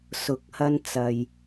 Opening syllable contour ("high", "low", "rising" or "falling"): rising